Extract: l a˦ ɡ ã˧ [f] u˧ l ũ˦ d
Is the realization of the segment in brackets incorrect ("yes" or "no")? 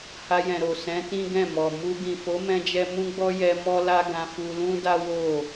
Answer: no